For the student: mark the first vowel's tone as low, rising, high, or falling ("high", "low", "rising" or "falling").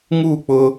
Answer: falling